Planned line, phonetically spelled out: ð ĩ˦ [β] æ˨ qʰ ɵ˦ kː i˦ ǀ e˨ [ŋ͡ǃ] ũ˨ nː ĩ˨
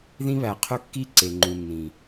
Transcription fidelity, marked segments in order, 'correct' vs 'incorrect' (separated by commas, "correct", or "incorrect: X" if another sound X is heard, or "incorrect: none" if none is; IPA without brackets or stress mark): correct, correct